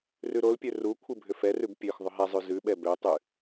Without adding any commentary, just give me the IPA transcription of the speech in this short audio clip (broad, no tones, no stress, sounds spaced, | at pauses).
r ʉ ɾ o l pʲ ø r u kʷʰ ɨ bʱ ʏ f ɛ r ʉ b pʲ ø x ðˤ ʏ ɦ ɛ zˤ ʉ z ʉ ɓ ɛ b ø tˤ ʉ